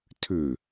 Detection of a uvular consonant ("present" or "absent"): absent